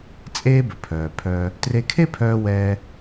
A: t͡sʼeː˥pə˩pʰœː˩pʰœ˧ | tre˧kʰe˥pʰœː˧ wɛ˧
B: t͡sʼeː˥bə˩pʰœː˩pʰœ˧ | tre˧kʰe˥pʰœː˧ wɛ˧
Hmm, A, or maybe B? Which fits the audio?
B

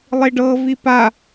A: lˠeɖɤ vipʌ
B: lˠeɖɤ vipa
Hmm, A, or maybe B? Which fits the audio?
B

